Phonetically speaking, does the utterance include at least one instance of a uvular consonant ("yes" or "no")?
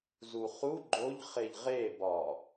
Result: yes